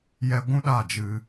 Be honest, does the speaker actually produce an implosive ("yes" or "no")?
yes